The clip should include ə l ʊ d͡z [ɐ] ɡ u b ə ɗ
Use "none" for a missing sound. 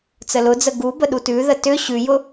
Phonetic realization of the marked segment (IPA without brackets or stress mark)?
ə